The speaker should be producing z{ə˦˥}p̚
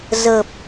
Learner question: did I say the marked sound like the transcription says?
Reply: no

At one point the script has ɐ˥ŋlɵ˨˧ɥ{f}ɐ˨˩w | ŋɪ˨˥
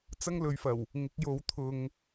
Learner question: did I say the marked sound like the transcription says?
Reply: yes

